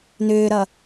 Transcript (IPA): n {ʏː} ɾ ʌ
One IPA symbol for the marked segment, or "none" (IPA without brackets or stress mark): ʏː